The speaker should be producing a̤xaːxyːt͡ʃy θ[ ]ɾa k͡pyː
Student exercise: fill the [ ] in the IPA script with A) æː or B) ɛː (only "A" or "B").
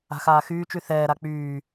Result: B